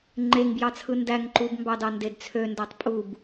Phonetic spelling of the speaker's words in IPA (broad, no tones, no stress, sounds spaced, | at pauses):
ŋ͡ǃ e ŋ b j ɑ t͡sʰ ɯ n d æ ŋ ǃ u b m b ɑ d ɑ n d e d t͡sʰ ø n d æ tˤ pʼ u b